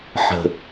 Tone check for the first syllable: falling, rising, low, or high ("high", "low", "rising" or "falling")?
low